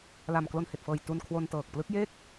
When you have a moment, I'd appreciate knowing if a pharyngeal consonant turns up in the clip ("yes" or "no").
no